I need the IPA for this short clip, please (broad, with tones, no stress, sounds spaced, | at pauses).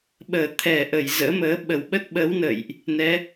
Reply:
ɓ əː˧˩ t̪ʰ ɛ˧˩ ʔ ə˧˩ j z ə̰ː˧˥ m əː˨˦ ɓ ə˧˩ w ɓ ə˦˥ t̚ ɓ əː˨˦ w n ə̰ː˧˨ j ʔ | n ɛ˨˦